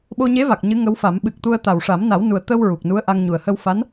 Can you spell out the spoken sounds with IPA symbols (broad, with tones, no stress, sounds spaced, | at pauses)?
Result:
ɓ o˧ ɲ e˧˥ v a˨˩ k̚ ɲ ɨ˧˥ ŋ ə˧˥ w f a˨˩˦ m ɓ ɨ˨˩ k̚ t̪ u˧ ə̯ t̪ a˨˩ w ʂ a˨˩˦ m n a˨˩˦ w n u˨˩ ə̯ t̪ ə˧ w ɹ u˨˩ k̚ n u˧˥ ə̯ ʔ a˧ ŋ ɲ u˨˩ ə̯ h ə˧ w f a˧˥ n